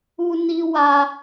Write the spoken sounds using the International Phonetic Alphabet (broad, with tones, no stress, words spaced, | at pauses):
u˧ni˧ wa˧